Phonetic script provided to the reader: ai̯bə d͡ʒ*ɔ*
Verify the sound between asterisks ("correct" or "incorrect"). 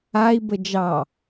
incorrect